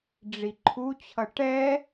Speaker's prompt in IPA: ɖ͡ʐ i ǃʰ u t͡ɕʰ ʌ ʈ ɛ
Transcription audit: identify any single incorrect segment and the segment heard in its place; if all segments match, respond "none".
none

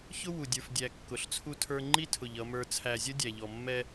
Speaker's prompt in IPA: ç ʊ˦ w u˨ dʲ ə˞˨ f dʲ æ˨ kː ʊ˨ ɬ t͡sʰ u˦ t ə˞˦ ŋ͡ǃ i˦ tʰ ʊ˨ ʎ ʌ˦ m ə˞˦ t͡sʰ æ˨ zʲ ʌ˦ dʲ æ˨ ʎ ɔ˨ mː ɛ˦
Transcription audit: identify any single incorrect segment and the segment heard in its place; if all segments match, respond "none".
t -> tʰ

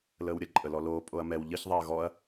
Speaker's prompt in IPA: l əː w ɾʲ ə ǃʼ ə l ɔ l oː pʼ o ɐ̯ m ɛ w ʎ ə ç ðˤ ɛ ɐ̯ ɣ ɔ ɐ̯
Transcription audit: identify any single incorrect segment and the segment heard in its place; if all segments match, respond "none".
none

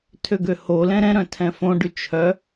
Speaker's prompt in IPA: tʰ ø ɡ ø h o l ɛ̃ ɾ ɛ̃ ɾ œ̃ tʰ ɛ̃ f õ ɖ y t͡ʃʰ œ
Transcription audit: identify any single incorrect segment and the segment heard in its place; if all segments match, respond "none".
none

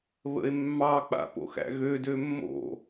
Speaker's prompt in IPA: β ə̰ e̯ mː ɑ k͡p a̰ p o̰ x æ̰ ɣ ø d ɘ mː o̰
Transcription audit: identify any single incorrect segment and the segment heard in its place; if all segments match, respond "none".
ɘ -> ø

